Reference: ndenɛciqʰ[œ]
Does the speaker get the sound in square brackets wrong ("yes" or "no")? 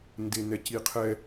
yes